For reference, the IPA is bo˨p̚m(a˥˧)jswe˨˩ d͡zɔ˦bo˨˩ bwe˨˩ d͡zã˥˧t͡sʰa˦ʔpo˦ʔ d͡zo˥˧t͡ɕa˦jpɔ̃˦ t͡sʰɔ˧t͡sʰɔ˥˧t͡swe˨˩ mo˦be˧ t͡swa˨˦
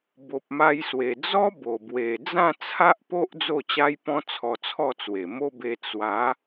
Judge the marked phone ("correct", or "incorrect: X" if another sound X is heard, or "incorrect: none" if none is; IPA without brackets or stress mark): incorrect: a˧